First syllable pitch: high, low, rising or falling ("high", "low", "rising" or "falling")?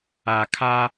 low